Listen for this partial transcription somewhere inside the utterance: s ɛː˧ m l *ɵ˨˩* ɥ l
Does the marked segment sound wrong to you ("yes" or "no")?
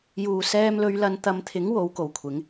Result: yes